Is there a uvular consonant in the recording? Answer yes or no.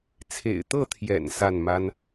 no